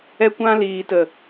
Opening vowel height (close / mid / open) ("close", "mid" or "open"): mid